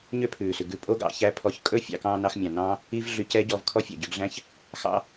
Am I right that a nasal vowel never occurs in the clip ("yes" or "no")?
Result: no